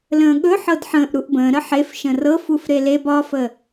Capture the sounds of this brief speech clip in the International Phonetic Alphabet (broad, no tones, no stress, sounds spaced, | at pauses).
l ə̃ː ɠ ɵ ħ ɤ d ħ ə̃ː ʔ ɾ u ʔ b ə̃ː ɾ ə ħ e f ʃ ə̃ r ɤ f u f ɾ e l e b ɒ f ə